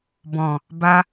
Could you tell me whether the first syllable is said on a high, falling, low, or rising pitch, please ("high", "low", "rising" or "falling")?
low